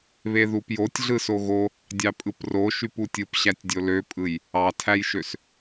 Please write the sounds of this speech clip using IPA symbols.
β e ð u p j o tʲ ɮ ɯ s o ɣ o | dʲ ɑ pʼ ɯ p r o ʃ y p u tʲ ɯ p ɕ æ tʲ dʲ o l ø pʼ ɯ j | ɑ tʰ æ j ʃ ø s

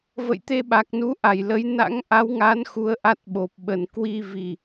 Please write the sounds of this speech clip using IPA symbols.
v ə̰˧˨ j t̪ e˧ ɓ a˨˩ k̚ n u˨˦ ʔ a˧˩ j l ə˨˦ j n a̰˧˥ ŋ ʔ a˨˦ w ŋ a˨˦ n x u˨˦ ə̯ ʔ a˦˥ t̚ ɓ o˨˩ p̚ ɓ ə˨˩ n k w i˧ v i˨˩

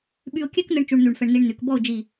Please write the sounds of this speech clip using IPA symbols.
ɓ y˧ ʊ̯ kʲ ɛ˥ k n ɘ˧ ɳ t͡ʃ u˧ ɳ n̪ y˧˩ ɳ f ɛ˧ ɳ n i˧ ɳ n y˩˧ k b ɔ˥˧ ʊ̯ d͡ʒ i˧˩

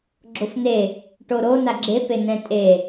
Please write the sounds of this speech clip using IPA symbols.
ɡ͡ǁ o f n e | ʈ o ɾ o n a ɡ͡ǁ e p e n ɛ̃ tʼ e

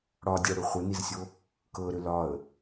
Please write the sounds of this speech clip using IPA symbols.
ɽ ɒ dʲ ɤ ɽ ʏ χʷ ɘ n i z sʲ o | k ɤ ɾ ʏ l ɒ ə̯

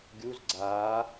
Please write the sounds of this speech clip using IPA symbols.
ɡʲ u z ɡ͡ǀ aː

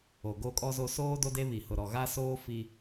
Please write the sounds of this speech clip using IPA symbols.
o˨ ɡ o˦˨ kʼ ɔ˦ z o˦ s oː˦ d o˦ d e˦ β i˨ h ʊ˨ ɾ ɔ˨ ɣ a˦ s oː˦ f i˦

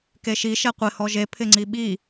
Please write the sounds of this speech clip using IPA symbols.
k e ʃ i ʃ ɛ qʷ ɪ h ɔ ʒ e pʰ ɪ ŋ͡ǀ i ɓ i

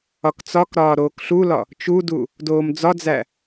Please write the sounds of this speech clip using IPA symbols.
ɒ k t͡s ɒ k ɾ ɒː ɾ oː k ɬ u l ɒ | t͡ʃ u d u | d oː m d͡z ɒ d͡z æ

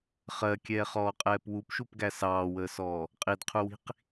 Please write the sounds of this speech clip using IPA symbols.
χ ɜ kʲ ɛː χ ɔː qʼ ɛː p w u p ʃ u p ɡ æ s ɑː w əː s ɔː | qʼ i d qʰ u w i̤ q

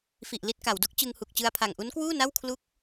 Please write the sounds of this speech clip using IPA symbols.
f i˨˩ ʔ l i˥˩ t̚ k a˩˦ w d o˦˥ k̚ t͡ɕ ɯ˧ ŋ h u˨˩ k̚ t͡ɕ ɯ˧ a̯ pʰ a˨˩ ŋ ʔ u˦˥ n k w uː˥˩ n a˥˩ w kʰ l u˦˥ k̚

